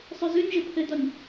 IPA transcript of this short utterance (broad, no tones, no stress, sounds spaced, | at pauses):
sˤ ʉ z ʉ nʲ ʒ ɘ pʰ ɘ d ɔ nʲ